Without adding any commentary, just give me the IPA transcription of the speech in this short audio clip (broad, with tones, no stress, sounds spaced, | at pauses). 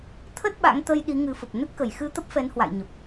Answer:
t̪ʰ ə˦˥ t̚ ɓ a̰˧˥ ŋ t̪ ə˧ j ɗ i˨˦ ŋ ɨ˨˦ f ə˨˩ p̚ n ə˦˥ t̚ k ə˧˩ j x ɨ˧ t̪ ə˦˥ p̚ f ɛ˨˦ n h w a̰˧˨ j ɲ ə˨˩ p̚